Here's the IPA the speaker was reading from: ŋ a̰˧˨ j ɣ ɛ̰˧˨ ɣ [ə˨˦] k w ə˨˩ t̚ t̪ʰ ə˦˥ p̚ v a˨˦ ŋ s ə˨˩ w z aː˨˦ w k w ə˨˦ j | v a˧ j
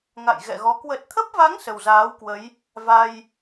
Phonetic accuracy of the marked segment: incorrect: ɔ˨˦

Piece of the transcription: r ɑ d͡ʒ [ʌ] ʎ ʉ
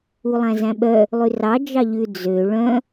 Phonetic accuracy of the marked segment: incorrect: ɑ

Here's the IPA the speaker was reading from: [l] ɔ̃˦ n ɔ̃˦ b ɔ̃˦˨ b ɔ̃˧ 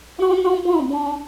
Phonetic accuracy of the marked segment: incorrect: ɾ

